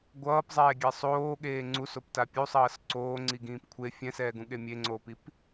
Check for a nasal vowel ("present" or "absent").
present